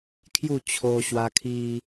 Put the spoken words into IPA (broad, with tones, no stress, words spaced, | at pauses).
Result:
kʰju˥˧t͡ɕʰo˧ɕwa˧kʰi˧